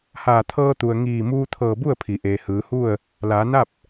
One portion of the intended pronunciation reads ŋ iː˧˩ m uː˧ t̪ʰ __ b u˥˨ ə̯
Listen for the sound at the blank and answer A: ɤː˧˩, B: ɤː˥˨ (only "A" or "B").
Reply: A